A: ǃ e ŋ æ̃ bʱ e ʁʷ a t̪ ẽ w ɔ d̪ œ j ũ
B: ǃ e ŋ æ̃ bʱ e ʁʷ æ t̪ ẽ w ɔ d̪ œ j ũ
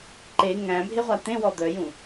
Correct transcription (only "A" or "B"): A